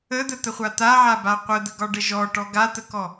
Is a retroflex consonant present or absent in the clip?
present